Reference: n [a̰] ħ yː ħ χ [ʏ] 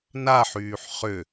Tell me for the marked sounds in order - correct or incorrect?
incorrect, correct

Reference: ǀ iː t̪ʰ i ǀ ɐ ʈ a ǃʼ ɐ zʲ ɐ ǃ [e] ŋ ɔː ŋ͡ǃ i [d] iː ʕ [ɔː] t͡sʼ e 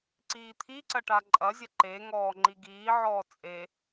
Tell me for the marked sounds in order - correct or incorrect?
correct, incorrect, correct

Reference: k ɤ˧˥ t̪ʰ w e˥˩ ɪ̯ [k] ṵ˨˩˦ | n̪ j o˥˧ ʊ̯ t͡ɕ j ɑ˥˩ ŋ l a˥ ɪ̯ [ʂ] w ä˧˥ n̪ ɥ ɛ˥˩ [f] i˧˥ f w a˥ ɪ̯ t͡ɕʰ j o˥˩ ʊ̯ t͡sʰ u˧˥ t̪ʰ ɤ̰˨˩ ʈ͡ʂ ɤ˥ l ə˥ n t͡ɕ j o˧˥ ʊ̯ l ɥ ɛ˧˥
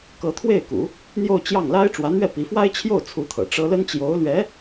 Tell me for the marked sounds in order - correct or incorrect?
correct, incorrect, incorrect

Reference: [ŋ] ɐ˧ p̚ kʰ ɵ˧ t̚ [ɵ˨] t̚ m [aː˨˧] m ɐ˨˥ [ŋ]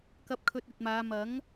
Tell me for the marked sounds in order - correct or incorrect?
incorrect, correct, correct, correct

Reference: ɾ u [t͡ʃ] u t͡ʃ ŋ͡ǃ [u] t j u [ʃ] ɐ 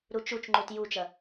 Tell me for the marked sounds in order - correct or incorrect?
correct, correct, incorrect

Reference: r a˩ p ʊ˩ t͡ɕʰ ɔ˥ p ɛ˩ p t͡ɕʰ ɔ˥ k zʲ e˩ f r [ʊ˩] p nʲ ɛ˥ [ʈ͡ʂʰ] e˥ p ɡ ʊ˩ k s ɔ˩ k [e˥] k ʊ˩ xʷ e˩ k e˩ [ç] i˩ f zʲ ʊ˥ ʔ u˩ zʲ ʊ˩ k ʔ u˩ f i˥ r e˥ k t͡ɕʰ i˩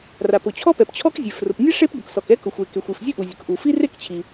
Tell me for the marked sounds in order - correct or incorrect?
correct, incorrect, incorrect, incorrect

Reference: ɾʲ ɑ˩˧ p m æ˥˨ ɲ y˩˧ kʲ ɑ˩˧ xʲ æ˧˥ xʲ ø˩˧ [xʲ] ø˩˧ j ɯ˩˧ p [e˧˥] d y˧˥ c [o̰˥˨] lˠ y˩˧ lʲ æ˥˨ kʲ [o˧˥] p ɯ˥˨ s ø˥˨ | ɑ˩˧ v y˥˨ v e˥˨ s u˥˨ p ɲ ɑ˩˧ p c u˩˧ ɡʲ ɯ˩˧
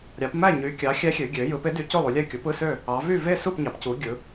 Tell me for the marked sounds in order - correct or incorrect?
incorrect, correct, incorrect, incorrect

